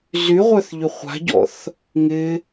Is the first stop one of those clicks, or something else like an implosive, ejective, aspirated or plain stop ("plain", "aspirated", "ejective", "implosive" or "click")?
plain